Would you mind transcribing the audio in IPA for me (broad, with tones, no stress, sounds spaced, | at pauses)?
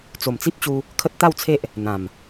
t͡s o˨˩ m t͡s i˦ p̚ t͡ɕ u˧ | kʰ ə˦ t̚ t̪ a˥˧ w t͡sʰ e˦ ʔ | n̪ ã˨˩ m